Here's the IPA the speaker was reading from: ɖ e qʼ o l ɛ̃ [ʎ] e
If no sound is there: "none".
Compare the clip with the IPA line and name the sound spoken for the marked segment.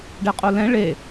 ɭ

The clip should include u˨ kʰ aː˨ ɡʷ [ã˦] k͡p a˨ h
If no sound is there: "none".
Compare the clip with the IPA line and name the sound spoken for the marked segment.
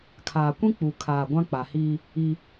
ã˦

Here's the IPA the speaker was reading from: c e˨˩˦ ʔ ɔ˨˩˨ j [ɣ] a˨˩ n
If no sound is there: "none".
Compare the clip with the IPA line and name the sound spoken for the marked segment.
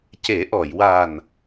w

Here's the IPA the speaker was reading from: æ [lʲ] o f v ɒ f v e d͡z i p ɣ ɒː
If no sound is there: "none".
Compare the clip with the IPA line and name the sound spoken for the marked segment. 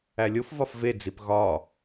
lʲ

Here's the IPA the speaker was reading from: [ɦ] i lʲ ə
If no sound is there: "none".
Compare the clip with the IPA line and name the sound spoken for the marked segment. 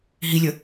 ɦ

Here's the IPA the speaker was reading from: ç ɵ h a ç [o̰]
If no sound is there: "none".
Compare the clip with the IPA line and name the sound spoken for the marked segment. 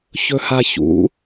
ṵ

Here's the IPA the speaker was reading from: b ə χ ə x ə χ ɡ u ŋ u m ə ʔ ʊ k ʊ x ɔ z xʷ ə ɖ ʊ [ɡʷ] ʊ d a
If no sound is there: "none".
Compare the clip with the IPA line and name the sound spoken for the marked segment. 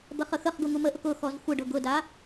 ɡ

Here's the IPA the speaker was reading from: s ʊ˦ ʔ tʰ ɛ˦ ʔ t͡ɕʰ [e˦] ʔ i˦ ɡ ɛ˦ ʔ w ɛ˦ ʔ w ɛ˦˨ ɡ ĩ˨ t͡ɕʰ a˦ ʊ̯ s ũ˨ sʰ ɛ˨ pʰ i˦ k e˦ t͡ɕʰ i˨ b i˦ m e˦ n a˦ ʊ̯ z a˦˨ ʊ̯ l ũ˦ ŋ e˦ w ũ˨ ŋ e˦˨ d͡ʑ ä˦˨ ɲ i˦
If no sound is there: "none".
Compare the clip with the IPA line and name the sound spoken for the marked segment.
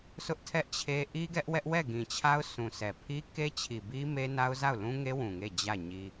e˦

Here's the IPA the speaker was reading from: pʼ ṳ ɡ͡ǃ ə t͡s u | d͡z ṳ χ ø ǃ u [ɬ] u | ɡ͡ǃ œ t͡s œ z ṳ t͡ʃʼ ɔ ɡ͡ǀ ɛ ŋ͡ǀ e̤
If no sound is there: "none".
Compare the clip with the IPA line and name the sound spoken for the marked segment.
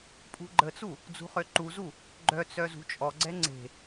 z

